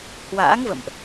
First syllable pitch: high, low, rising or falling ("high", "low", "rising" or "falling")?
rising